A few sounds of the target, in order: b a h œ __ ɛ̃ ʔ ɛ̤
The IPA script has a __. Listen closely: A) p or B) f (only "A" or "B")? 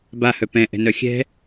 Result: A